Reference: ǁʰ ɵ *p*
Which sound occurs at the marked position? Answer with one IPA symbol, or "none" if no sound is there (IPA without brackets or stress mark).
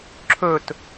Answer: t